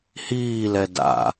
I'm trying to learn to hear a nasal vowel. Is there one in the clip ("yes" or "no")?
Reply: no